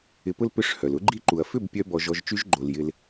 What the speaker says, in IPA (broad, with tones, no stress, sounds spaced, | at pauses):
ɪ˨ p ʊ˧ l p ʏ˦ ʂ h œ˨ l ʊ˦ ɡ͡ǃ i˦ ǃ u˨ ɐ̯ f ʏ˦˨ b pʲ œ˦ b ɔ˧ ʒ ɔ˧ ʒ t͡ʃ y˦ ʒ ɡ͡ǃ o˨ l j ɪ˧ l